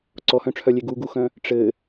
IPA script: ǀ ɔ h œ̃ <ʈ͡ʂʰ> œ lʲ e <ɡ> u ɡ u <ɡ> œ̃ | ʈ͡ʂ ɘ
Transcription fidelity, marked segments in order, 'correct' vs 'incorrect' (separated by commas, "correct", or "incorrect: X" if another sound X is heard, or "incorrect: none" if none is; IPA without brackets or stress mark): correct, correct, incorrect: x